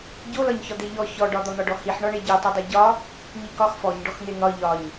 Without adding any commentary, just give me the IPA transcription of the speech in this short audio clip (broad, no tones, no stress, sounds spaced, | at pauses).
ɟ o l ɒ ɲ ç ɒ d̪ e ʎ ɔ ç ɔ ɖ ɒ d̪ ɒ n̪ ɒ ɖ ɔ h i ħ ɳ ɒ ɳ e ɟ o tˤ e dˤ e ɟ ɒ | ɲ i k ɒ x f ɔ ɲ ɖ ɔ x n̪ e n̪ ɒ ʎ ɒ ɲ